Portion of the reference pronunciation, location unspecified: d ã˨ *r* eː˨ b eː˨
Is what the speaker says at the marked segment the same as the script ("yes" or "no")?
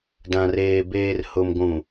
yes